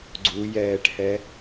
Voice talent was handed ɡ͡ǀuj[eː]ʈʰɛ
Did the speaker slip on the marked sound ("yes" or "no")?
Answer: yes